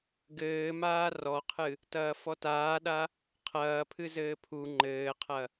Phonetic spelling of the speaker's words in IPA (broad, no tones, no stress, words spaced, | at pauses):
ɡɘːmaː rɔqʰɨ | tɐːfɔtaːɗa | qʰɐːpʰɨ zɘːpʰu ŋ͡ǃɘːqʰɐ